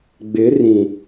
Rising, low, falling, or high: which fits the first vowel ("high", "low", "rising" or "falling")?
rising